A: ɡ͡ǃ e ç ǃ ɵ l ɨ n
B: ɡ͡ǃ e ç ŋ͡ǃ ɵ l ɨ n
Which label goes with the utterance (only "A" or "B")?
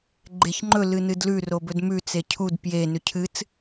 B